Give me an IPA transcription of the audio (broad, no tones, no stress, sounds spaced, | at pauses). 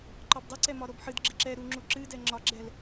ǃ ɒ b dˤ ɨ ǀ ɛ m ɒ ɾ o b ħ ɨ d ɡ͡ǁ ɨ ǁ ɛ ɾ u ŋ͡ǁ u ǁ ɨ d ɛ ŋ͡ǁ ɒ ɡ͡ǁ ɛ l